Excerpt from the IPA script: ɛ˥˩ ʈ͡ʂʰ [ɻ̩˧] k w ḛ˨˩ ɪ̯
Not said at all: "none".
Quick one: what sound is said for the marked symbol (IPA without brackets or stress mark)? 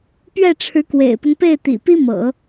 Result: ɻ̩˧˥